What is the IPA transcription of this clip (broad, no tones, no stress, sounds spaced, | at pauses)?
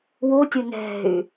w o tʲ ʊ n ɛ̤ y̯